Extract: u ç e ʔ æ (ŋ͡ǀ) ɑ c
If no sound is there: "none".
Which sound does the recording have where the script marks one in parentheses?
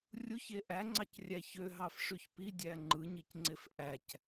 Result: ŋ͡ǀ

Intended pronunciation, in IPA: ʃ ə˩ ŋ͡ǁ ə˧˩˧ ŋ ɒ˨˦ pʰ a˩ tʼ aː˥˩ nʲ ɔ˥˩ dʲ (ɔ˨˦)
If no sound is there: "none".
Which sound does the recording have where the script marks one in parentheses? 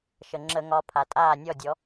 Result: ɔ˨˦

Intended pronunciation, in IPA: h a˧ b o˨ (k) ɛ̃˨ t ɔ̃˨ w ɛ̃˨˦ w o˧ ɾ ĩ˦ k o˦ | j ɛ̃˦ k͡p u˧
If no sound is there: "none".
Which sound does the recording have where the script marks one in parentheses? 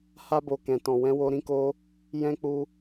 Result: k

